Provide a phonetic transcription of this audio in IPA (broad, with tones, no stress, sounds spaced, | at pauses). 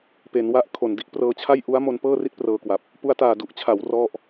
p e˩˦ n w a˦˥ ʔ kʰ o˨˩ n d i˥˩ ʔ p r ɤː˧ t͡ɕʰ a˥˩ j ʔ u˦˥ a̯ m o˧ n p ɤː˥˩ r i˥˩ t̚ p r ɤː˧ k w a˨˩ p̚ | p u˧ a̯ t aː˨˩ d u˨˩ ʔ t͡ɕʰ a˩˦ w r ɔ˥˩ ʔ